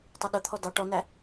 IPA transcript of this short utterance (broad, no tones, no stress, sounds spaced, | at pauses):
tˤ ə ɗ ʊ t̪ʰ ɔ d ɑ ʈ ɔ n æ